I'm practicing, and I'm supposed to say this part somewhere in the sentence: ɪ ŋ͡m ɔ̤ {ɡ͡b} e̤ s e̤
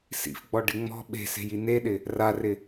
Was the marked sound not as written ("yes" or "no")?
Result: yes